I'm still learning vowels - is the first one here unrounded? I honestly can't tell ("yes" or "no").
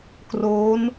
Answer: no